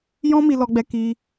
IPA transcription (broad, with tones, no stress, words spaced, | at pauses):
jɔ̃˦mi˧lɔ˧ɡ͡bɛ˧ ki˧